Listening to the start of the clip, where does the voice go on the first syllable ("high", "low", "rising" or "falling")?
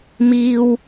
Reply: high